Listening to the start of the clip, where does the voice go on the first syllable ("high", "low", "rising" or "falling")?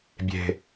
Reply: low